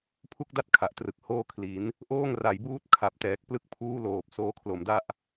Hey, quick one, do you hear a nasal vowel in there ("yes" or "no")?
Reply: no